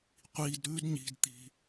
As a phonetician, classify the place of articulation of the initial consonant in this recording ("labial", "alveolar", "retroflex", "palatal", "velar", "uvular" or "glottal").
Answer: uvular